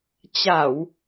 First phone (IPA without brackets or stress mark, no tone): t͡ɕ